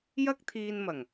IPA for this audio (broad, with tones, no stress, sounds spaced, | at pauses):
j ɐ˥ k̚ t̪ʰ iː˧ n m ɐ˨˩ ŋ